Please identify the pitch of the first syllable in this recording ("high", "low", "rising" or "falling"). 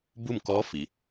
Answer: falling